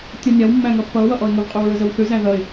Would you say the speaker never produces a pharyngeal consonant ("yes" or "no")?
yes